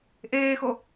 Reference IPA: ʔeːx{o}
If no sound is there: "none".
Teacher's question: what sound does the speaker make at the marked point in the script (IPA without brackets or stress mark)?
o